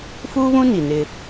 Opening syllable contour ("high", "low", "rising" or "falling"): high